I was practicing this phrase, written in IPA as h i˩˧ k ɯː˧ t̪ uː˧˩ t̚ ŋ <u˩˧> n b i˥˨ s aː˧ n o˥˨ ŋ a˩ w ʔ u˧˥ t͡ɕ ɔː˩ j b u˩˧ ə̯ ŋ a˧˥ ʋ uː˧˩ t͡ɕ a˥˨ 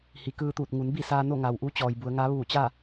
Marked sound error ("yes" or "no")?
no